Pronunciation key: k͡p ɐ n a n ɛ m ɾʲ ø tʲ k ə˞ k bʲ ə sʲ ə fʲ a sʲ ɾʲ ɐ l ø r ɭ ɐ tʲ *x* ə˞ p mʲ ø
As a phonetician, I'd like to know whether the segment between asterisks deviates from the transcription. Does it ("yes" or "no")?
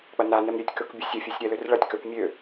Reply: yes